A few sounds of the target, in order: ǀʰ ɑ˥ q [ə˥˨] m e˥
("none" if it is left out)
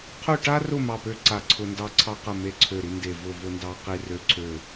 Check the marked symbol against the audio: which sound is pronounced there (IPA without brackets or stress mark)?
ə˥˨